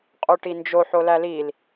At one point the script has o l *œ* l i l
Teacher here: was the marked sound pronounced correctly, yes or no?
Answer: no